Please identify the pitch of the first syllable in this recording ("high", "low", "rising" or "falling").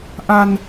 low